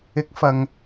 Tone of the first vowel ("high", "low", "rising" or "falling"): rising